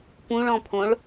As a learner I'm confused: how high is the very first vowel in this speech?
high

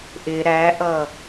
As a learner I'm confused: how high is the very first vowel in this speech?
high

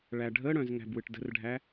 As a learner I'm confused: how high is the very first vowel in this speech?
low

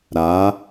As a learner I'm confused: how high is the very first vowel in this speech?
low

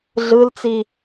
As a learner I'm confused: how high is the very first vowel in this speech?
high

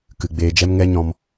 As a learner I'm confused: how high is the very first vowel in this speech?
high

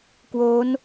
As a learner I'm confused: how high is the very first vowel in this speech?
mid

